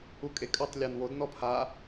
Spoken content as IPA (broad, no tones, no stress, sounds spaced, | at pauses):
u kʼ e kʼ œ tˤ lʲ o n w o d n ɔ pʰ a